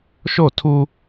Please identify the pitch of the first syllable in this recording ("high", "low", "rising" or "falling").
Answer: falling